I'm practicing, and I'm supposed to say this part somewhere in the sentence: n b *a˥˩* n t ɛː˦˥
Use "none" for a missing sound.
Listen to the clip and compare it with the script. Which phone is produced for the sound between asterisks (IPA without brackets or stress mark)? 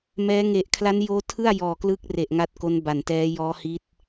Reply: a˨˩